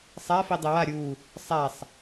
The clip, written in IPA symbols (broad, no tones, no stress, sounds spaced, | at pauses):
sˤ a f i dˤ ɪ w a ɾʲ u | sˤ a sˤ